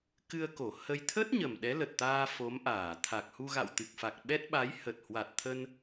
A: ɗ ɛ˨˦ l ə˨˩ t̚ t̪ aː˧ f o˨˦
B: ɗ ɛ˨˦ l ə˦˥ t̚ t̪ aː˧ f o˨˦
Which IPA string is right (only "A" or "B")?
A